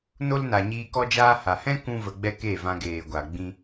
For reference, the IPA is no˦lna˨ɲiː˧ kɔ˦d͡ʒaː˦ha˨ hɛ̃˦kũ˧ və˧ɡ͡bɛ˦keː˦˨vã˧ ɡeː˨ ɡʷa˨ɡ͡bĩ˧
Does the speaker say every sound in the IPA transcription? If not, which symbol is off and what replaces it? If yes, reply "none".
none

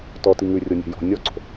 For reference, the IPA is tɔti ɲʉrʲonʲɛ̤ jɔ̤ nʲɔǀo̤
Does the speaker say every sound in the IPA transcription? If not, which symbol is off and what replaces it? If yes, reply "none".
ɲ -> ŋ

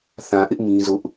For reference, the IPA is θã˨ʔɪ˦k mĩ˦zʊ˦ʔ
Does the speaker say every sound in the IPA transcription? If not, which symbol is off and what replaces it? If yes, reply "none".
k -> ʔ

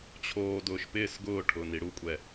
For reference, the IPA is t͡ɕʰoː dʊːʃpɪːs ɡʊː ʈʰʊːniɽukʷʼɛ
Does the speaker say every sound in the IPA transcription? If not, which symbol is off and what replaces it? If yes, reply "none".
none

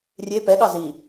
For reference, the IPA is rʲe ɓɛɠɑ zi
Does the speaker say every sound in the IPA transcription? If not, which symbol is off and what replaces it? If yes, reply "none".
ɓ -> p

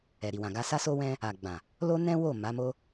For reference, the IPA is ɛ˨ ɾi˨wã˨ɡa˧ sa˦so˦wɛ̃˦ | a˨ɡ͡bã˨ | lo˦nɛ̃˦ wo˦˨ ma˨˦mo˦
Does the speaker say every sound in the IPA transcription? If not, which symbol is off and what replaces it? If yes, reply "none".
none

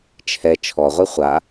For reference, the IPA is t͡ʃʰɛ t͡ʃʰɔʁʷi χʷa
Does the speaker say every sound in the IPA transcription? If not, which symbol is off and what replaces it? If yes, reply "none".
none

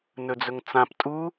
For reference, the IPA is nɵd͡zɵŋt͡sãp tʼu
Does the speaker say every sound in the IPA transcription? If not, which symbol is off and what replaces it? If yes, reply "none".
none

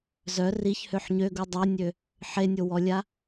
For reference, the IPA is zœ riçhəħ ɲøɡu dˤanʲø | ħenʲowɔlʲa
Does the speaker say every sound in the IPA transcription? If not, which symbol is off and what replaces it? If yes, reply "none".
ə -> ø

